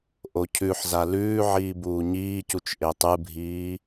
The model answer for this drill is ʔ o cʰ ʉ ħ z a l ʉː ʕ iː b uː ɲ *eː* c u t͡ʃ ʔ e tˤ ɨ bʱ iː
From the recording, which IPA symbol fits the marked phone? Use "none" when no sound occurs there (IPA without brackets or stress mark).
iː